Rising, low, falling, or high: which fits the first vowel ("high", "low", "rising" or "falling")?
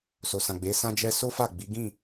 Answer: low